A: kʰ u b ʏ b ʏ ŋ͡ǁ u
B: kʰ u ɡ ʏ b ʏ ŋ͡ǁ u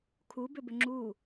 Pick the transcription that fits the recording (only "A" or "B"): A